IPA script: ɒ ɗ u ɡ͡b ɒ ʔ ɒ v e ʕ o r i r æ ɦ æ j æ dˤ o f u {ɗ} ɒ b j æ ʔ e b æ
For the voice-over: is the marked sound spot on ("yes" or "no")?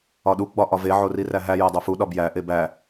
yes